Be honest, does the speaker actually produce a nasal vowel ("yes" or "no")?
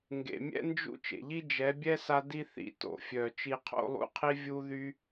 no